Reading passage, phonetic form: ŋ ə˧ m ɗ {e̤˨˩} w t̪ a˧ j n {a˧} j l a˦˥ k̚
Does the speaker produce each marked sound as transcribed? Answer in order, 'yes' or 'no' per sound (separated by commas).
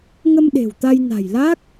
yes, no